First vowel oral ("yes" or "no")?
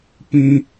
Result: no